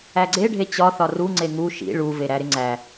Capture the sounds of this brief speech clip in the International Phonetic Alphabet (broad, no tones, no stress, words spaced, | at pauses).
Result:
æɡ͡ǀe ɖʱet͡ɕɒ θɒru ŋ͡ǀeŋu ʃḭ ɭu veɾæɾɪŋ͡ǀæ